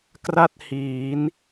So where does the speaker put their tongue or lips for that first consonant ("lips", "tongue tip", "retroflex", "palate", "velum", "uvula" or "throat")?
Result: velum